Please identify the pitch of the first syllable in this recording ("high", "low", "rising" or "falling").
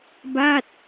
falling